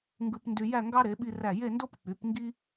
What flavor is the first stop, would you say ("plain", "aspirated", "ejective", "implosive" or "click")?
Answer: plain